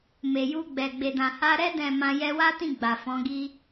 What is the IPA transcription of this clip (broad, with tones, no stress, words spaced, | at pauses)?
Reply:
me˨ju˧ɡ͡bɛ˨ ɡ͡be˨dã˨ha˧ɾɛ˦ dɛ̃˦˨mã˧ jɛ˧wa˦tĩ˦˨ ɡ͡ba˨fɔ̃˨˦ɡi˦